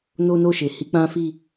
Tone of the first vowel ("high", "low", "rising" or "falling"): high